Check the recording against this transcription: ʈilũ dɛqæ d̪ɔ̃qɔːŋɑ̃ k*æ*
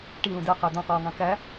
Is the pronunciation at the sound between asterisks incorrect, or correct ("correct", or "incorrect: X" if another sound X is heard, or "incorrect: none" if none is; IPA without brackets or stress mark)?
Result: correct